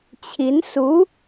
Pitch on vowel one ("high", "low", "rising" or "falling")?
rising